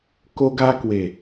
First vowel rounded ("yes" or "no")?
yes